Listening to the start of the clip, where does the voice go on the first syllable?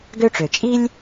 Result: high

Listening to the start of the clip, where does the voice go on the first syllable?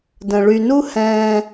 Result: low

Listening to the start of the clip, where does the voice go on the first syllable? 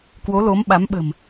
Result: rising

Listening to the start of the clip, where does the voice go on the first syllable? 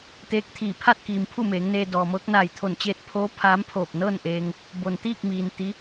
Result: rising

